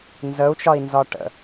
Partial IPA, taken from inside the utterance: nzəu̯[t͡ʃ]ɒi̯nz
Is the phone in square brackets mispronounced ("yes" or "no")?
no